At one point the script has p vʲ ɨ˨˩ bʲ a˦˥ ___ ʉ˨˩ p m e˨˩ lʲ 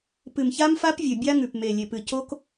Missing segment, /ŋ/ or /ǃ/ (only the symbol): ŋ